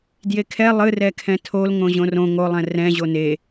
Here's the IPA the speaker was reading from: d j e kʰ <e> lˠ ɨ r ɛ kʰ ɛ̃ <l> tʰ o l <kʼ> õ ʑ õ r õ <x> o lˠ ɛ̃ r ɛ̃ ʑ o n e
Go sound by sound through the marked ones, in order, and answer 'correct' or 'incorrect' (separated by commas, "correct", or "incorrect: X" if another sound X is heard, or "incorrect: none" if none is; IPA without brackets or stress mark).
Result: incorrect: ɛ, incorrect: none, incorrect: ŋ, incorrect: ŋ